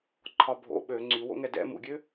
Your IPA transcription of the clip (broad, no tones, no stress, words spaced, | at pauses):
ǃʰɒbʱo̰ ɓø ŋ͡ǀywo̰ ŋɛdɛ̰ mṵɡʲø